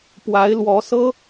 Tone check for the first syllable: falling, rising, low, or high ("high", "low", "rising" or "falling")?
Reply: rising